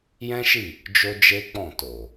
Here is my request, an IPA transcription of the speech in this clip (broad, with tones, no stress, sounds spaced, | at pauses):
j ɛ̃˦ ʃ i˦˨ | d͡ʒ o˦ d͡ʒ e˦ k͡p ɔ̃˦˨ t o˨